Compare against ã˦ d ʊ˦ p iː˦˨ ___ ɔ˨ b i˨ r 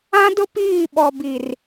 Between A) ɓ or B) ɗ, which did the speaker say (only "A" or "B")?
A